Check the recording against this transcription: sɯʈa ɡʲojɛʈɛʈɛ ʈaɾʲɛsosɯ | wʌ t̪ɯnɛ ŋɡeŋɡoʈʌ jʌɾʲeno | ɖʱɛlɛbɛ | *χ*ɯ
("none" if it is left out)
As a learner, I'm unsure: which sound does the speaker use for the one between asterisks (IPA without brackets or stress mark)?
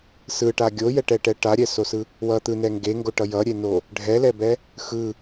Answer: x